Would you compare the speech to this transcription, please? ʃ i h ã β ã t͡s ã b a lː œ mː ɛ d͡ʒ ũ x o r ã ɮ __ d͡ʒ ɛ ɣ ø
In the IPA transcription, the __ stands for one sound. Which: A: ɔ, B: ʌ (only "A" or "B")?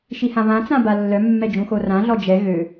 A